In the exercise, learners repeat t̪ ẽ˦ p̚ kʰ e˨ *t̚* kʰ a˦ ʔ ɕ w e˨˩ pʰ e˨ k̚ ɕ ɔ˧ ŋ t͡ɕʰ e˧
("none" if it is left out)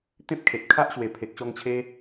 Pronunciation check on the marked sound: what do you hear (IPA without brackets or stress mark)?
t̚